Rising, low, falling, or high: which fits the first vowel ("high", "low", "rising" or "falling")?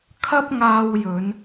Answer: high